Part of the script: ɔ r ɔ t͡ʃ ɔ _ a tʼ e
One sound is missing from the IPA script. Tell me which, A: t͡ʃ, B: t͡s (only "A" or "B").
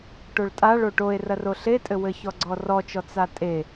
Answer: B